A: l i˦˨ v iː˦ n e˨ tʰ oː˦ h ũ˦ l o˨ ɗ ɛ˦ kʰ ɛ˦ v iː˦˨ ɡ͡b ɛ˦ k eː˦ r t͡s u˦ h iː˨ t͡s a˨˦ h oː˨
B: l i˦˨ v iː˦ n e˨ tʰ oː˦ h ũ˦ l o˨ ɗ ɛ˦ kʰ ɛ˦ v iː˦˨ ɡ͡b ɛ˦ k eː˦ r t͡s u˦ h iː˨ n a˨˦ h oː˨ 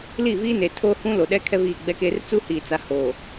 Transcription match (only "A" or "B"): A